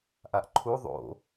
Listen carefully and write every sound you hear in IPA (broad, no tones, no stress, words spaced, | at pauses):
ʔaʔǃʰu ðˤo̰